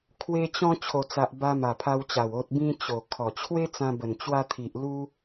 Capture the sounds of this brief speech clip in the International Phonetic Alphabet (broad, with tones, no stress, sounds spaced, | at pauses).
kʰ w e˧ t͡ɕ ɔ̃˧ t͡ɕʰ o˨˩ t͡s a˨ ʔ b a˧ m a˨˩ pʰ a˧ w t͡ɕ a˨˩ w o˨ t̚ b ĩ˧ t͡ɕ o˨˩ kʰ ɔ˨˩ t͡ɕʰ w e˦ t͡s ã˧ b ə˨˩ n t͡ɕ w a˧ t̪ʰ i˨ ʔ l u˦